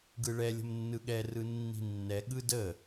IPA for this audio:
ɡ ɯ ɭ ɛ lʲ ə̤ m nː ɯ ɠ ɛ r ɯ nː i̤ nː ɛ ɠ ɯ d ə

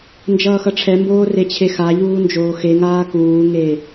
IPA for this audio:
n d͡ʒ ʌː x ʌ ʈ͡ʂʰ ɛ m b oː r e t͡ɕʰ e x a ʎ uː n d͡ʒ oː x e ŋ aː k uː ŋ e

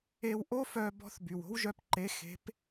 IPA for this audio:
e˧ w ʔ o˥ f œ˧ b ɔ̤˧˥ θ b y˩ w o̤˥ w ʒ œ˧ p ǃ e˧˥ x e̤˧˥ p

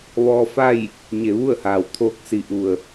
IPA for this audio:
ʋ ɔː˧ f a˥˨ j | ɲ e˩˧ ʋ u˥˨ ə̯ h aː˩ w t̪ʰ oː˧˥ k̚ s i˩ ʔ u˩ ə̯

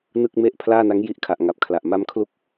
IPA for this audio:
n ɯ˥˩ k̚ m e˥˩ ʔ pʰ l aː˥˩ n a˦˥ ŋ j i˦˥ ʔ kʰ a˨˩ ʔ ŋ a˨˩ p̚ kʰ l a˨˩ ʔ m a˦˥ m kʰ l u˥˩ k̚

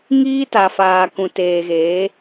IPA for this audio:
ŋ iː˦ t a˨ f aː˨ k ũ˨ t eː˨ ɣ eː˨˦

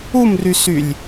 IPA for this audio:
u m r y s y lʲ

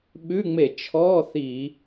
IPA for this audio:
ɓ ʉ˧˥˧ ŋ͡m e˧˩˧ t͡ʃʰ ɔ˧˥˧ θ i˧˩˧

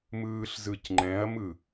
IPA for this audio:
m ɯː ɬ z ɯ c ŋ͡ǃ ɛ̃ ɐ̯ m ɯ

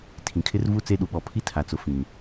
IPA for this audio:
tʰ ĩ˨ kʰ ɪ˦ r v u˦ t͡s e˦ ɗ u˨ ɓ ɔ˨ pʰ i˦ tʰ a˨ t͡s ʊ˨ f ĩ˨

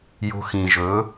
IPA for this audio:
j o̤˧ x ĩ˨ ʒ ɵ˨˦

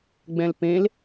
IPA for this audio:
ɡ͡b ɛ̃ l p ẽ l

